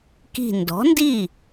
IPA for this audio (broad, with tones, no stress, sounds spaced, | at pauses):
k i̤˧˩ n d ɔ̤˩˥ n d i˥˩